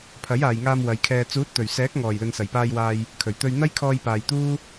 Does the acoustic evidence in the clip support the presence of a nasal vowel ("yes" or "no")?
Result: no